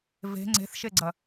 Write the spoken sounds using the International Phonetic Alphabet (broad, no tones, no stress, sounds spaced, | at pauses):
v e̤ ŋ͡ǀ e̤ θ ʃ e ɡ͡ǀ ɐ